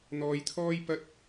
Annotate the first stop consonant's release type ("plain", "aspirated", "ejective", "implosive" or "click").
aspirated